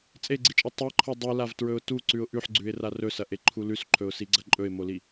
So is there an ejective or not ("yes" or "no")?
yes